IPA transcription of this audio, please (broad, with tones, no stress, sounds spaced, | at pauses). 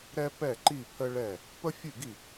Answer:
ɾ ɛ˦ p ɛ˦˨ ǃ i˦˨ pʰ ə˦ ɭ ɛ˦˨ | p ə˦ fʲ ʉ˦˨ ɡ i˦˨